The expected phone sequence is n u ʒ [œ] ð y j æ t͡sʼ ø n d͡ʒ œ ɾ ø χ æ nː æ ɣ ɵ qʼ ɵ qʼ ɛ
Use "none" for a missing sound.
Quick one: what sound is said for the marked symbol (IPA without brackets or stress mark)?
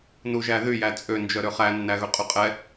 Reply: æ